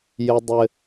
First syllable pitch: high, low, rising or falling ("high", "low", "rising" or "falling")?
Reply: low